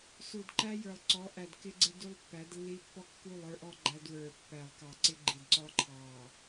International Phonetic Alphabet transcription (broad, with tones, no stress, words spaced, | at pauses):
su˨dǃæ˦ jə˞˨lˠǀɔ˨˦ ʔæ˨dkɪ˦ɡ͡ǀɪ˦ du˦lˠpːæ˨˦dlːi˦ pːɔ˦kːu˦˨lˠ ə˞˦ʔɔ˦ɡ͡ǃæ˦dwə˞˨ pːæ˨lˠkɑ˨ǀɪ˦ ɡ͡ǃi˨dǀɔ˦ ǃʰɑ˨